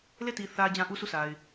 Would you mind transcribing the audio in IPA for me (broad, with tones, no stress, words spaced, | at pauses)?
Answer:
le˦˨ti˨ θä˨ d͡ʑã˦ʔu˦sʰu˦˨sa˨ɪ̯